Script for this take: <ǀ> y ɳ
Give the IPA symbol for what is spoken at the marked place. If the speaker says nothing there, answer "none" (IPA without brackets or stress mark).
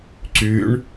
ǀ